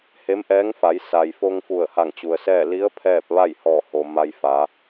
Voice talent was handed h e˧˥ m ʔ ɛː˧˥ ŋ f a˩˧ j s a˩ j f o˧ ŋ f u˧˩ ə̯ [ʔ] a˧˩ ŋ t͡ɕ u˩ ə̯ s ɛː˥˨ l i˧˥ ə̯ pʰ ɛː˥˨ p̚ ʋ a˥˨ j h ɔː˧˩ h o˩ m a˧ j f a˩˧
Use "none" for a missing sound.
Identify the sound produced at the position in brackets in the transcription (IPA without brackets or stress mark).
h